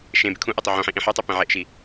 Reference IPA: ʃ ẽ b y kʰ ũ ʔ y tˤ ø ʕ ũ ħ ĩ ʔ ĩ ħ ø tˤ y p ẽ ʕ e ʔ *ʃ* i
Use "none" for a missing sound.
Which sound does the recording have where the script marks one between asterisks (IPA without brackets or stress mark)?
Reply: ʃ